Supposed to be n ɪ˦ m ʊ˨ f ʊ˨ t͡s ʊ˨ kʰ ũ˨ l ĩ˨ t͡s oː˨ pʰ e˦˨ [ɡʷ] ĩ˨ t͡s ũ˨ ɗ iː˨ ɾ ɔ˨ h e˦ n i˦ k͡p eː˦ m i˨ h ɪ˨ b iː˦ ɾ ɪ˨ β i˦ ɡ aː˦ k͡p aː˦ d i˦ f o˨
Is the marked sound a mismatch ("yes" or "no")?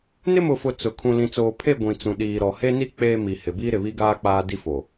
no